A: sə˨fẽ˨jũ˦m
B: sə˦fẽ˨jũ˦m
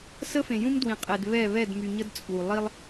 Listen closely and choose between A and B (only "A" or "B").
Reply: B